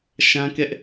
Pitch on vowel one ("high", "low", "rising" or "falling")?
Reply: high